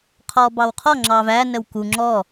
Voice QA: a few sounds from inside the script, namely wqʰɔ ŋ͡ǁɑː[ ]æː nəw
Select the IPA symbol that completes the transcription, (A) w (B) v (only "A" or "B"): B